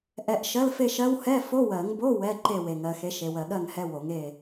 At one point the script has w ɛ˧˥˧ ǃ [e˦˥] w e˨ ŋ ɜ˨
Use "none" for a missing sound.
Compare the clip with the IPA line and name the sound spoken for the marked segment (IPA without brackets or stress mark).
e˥˨